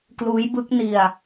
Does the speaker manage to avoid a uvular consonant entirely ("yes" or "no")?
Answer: yes